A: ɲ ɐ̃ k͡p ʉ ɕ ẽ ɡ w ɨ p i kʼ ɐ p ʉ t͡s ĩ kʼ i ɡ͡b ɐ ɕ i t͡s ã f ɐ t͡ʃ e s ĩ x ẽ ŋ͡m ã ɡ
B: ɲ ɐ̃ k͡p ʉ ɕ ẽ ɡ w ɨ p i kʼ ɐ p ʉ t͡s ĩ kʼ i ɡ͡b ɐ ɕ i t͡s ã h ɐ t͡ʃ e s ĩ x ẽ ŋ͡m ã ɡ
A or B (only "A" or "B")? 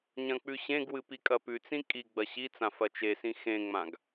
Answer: A